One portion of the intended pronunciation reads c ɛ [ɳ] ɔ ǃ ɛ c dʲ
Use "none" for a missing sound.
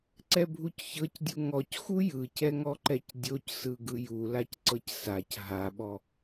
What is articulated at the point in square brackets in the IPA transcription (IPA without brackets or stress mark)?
ŋ